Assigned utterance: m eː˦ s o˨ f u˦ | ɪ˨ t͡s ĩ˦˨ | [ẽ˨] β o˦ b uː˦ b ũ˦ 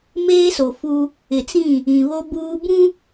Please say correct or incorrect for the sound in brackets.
incorrect